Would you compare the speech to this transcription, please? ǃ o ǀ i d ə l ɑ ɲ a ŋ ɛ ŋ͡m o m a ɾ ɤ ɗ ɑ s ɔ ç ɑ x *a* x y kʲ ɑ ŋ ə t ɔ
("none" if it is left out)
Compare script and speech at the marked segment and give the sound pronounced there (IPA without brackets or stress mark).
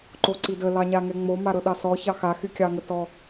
a